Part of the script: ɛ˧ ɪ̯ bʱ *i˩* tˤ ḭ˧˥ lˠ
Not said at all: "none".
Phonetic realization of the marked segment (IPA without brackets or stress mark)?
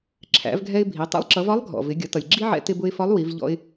i˩˧